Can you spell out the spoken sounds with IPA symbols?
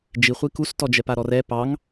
d͡ʒ i χʷ i k u s t ɔ d͡ʒ ɛ p a ɾ ɔ r ɛ p ɑ ŋ

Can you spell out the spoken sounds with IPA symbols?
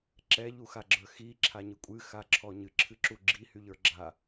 ǁ ɛ ʎ u x a ɡ͡ǁ ə˞ x i ǁʰ a ɲ ɨ kʷʼ ɨ x a ǁʰ ɔ ɲ ɨ ǁʰ ɨ ǁ u ɡ͡ǁ i h y ʎ ə˞ ɡ͡ǁ a

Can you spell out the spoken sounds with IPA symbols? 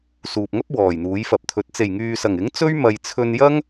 s uː˨ p̚ ŋ ɐ˥ p̚ w ɔː˨˩ j n̪ uː˨˥ j f ɐ˨˥ p̚ t̪ʰ ɵ˨˥ t̚ t͡s e˨˩ j ŋ yː˨ s ɐ˨˩ ŋ ɪ˨˥ ŋ t͡s ɵ˥ ɥ m ɐ˨ j t͡sʰ ɵ˧ n j ɐ˥ ŋ

